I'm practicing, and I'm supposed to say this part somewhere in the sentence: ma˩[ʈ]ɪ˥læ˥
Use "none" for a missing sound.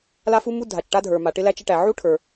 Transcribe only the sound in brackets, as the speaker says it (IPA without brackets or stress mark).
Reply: ʈ